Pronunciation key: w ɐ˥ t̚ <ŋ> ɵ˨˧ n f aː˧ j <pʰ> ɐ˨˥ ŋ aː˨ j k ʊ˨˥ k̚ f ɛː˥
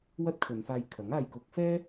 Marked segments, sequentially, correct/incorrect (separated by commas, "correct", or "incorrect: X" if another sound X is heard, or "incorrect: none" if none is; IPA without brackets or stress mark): incorrect: kʰ, incorrect: kʰ